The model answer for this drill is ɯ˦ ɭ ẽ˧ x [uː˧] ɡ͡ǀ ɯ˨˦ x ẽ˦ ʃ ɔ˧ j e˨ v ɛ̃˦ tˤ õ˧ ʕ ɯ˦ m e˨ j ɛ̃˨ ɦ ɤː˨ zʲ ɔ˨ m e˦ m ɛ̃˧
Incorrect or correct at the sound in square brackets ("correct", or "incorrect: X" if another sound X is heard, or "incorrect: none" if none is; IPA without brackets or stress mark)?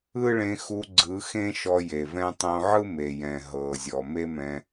incorrect: u˧